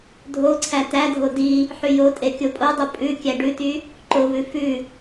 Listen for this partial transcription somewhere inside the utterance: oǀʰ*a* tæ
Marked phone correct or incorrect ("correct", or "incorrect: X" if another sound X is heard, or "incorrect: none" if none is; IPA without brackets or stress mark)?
incorrect: æ